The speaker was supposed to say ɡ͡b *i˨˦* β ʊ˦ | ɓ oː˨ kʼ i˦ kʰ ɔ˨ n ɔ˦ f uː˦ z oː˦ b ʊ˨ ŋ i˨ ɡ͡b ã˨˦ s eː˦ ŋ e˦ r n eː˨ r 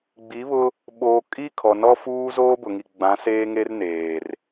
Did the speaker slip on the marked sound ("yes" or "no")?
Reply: no